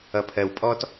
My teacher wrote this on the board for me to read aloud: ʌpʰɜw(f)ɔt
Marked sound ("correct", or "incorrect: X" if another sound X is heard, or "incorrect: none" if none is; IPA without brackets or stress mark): incorrect: pʼ